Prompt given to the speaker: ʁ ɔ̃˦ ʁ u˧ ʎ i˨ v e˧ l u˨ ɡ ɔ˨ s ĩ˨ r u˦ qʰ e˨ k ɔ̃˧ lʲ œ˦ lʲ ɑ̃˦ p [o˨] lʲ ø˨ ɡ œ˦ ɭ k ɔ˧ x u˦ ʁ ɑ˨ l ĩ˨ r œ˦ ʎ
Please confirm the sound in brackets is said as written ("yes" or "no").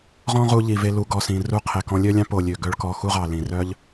yes